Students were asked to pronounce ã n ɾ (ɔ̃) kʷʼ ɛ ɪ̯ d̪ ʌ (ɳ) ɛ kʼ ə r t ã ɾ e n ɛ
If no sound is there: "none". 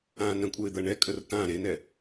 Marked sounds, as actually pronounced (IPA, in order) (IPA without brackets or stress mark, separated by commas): ə̃, ɳ